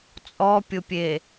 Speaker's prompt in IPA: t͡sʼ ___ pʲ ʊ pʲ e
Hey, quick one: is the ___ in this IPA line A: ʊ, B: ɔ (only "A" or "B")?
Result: B